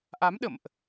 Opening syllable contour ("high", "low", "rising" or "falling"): rising